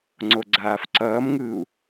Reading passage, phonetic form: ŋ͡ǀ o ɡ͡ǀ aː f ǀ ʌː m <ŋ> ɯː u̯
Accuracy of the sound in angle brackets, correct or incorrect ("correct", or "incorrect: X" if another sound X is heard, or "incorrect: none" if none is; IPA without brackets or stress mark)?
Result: correct